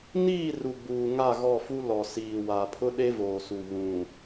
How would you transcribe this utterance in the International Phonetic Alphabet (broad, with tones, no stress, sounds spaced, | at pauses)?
n iː˦˨ r u˨ ɡ͡b uː˨ ŋ a˦˨ ɣ ɔ˦˨ f u˦ l ɔ˨ s iː˨ w a˨ pʰ ʊ˦ ɗ e˦ v oː˨ s u˨ β ũ˨